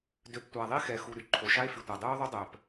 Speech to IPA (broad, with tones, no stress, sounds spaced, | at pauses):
d ø˨ p tʷ a˨ ðˤ i˦ x ɛ˨ x u˨ ɾ y˦ ǃʰ o˨ ʃ a˦ e̯ f y˨ tʷ a˨ dˤ yː˦ o̯ ðˤ u˦ dˤ œː˨ p